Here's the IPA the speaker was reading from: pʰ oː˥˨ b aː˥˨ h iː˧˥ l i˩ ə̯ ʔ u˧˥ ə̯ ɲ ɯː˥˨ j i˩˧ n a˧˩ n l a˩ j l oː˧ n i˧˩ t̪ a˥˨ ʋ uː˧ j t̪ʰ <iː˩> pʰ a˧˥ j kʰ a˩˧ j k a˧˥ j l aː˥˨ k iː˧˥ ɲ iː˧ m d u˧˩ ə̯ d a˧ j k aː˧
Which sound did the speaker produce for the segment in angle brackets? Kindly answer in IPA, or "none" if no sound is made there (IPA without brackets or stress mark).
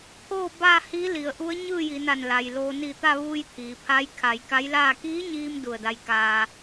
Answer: iː˩